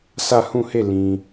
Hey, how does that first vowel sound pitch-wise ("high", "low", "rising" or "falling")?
falling